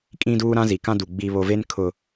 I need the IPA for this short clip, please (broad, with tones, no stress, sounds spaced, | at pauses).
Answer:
kʼ ĩ˦ d uː˦ ɾ ã˦ z i˨ k ã˦ d u˨ ɡ͡b i˦ β o˦ v e˦ n kʰ ʊ˦